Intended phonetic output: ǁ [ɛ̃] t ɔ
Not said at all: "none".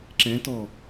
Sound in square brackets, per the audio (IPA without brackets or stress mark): ɛ̃